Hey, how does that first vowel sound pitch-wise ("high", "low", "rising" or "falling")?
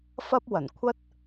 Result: high